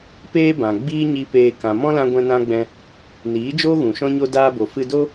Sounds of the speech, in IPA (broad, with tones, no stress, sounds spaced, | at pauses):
p eː˦ b ã˨ ɡ͡b iː˦ ɲ i˧ p eː˧ k ã˨ m ɔ̃˦ l ã˧ ɡʷ ɛ̃˦ n ã˦ ɡ͡b ɛ̃˧ | n iː˨˦ d͡ʒ oː˦ ɣ ũ˨ ʃ ɔ̃˦ ɲ o˦ d aː˧ b o˨ f ɨ˧ d o˦